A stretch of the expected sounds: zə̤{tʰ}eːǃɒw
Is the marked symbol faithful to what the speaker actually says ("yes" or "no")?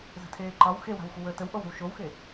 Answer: yes